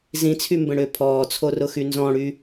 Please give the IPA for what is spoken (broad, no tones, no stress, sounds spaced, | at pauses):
z ĩ t͡sʰ y m b ə̃ ɽ ʏː pʰ ɔː t͡sʰ o r ʊ x y n z ɔ̃ ɽ y